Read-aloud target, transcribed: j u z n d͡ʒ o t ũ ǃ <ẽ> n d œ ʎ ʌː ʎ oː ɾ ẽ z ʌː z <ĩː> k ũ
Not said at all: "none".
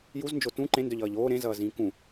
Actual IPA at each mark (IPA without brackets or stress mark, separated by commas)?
ẽ, ĩː